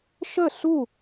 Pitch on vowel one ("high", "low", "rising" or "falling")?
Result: falling